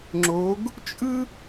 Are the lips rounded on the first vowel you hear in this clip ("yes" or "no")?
yes